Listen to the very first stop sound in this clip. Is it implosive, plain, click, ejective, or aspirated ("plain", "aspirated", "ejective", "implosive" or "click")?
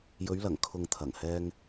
aspirated